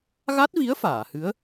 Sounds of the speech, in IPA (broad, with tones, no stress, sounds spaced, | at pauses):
ɣ a˦˥ t̚ v i˧˥ ə̯ f aː˨˩˨ h ɨ˧˥ ə̯